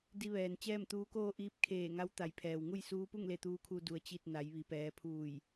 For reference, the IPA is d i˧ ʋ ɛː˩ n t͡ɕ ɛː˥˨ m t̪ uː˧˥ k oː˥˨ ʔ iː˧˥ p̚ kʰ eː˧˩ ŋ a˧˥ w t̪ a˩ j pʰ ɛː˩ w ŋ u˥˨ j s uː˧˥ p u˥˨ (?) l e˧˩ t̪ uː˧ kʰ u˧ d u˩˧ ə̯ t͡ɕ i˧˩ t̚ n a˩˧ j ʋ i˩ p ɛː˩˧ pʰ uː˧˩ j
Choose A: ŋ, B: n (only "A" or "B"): A